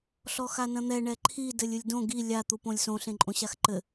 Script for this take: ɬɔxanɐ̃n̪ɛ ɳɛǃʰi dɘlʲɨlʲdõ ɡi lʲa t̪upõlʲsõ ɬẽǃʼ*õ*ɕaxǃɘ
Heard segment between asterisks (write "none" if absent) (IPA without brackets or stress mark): õ